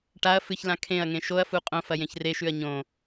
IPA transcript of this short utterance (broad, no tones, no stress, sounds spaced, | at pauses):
ʈ a ɐ̯ f ɨ ç l ã kʰ ẽ ɐ̯ ŋ ẽ ʃ o ɐ̯ f u qʼ õ f ɐ j ẽ ç r e ʃ ʉ ɐ̯ ɲ õ